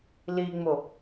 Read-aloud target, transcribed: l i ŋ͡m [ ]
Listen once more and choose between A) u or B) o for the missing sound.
B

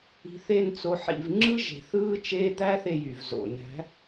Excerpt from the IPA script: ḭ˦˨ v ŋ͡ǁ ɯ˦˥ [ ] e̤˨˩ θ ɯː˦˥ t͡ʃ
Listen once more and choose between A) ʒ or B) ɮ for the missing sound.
A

